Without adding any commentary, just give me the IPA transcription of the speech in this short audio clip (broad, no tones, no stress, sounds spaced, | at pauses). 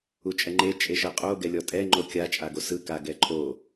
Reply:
u t͡ʃʼ ɛ ŋ͡ǃ e t͡ʃʼ e ʃ ɤ qʼ o ɡ ɛ lʲ ɔ tʼ ɛ ŋ͡ǃ o kʲ a t͡ʃʼ a ɡ o s ɯ k a ɡ ɛ ǃʼ o